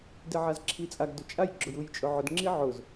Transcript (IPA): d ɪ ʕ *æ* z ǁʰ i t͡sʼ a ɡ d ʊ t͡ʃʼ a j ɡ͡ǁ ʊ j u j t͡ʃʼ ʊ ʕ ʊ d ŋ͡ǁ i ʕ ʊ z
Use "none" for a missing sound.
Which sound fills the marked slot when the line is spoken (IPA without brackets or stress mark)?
a